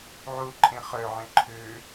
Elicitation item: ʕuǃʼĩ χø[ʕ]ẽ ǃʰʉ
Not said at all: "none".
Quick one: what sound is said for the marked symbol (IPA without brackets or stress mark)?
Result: ʕ